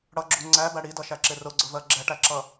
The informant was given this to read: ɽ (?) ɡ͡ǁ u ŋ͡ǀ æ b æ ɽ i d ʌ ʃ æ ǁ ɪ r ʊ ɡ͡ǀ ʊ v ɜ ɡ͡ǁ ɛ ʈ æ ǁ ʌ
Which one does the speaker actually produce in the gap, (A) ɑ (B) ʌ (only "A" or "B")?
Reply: B